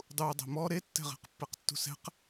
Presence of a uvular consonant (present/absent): present